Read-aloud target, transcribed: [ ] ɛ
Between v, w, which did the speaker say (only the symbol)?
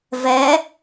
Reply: v